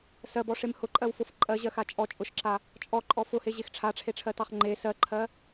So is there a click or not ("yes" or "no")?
yes